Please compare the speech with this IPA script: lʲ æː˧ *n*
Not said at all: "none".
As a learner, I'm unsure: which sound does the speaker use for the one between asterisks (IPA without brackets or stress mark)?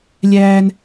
n